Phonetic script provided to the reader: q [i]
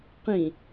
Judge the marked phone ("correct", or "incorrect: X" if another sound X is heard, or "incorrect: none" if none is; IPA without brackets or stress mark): incorrect: ĩ